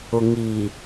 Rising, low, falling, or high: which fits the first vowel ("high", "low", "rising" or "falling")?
low